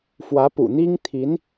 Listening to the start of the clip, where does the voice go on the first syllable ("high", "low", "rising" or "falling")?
rising